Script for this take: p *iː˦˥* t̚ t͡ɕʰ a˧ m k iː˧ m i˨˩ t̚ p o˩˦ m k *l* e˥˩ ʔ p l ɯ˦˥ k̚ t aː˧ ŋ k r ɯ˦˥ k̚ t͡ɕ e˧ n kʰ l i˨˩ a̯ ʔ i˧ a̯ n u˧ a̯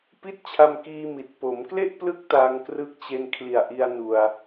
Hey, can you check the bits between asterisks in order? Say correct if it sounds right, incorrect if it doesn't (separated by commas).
incorrect, correct